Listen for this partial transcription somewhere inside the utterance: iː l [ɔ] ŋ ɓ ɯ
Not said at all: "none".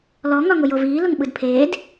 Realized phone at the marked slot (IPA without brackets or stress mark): ʊ